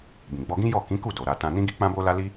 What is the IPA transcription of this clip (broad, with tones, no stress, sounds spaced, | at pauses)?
b ĩ˨ ɡ͡b ɔ˧ ɡ ĩ˦ j ɔ˦˨ k ĩ˨˦ k u˦˨ d o˨ ɾ a˧ t ã˧ n ĩ˦ ɡ i˦ k͡p ã˦ b o˦ l a˦ l i˦